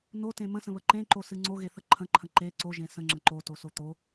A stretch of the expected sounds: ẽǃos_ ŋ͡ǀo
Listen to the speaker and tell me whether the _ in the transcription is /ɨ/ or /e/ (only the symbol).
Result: ɨ